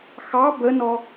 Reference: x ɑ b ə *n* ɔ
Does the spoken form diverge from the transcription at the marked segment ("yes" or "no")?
no